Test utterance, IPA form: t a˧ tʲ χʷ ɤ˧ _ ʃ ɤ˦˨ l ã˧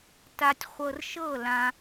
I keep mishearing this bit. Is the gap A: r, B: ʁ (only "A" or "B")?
A